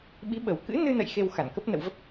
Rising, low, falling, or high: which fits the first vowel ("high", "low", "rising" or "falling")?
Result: rising